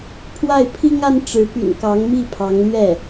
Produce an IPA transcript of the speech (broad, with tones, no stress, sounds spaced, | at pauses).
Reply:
pʰ w a˥˩ ɪ̯ pʰ i˥ ŋ a˥ n ʈ͡ʂ ɻ̩˧˥ p y̰˨˩ n k ɑ˧˥ ŋ m i˥˩ pʰ ɑ˧˥ ŋ l ɥ ɛ˥˩